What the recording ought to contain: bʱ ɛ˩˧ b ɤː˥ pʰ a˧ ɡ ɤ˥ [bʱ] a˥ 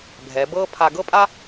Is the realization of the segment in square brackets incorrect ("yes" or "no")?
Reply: yes